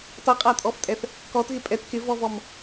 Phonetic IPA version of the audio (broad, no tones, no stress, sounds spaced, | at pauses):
tˤ i qʼ a tʼ ɔ f tʼ ɛ θ | k ɔ t ɣ ɪ pʼ ɛ t k ɪ v ɔ v ɔ m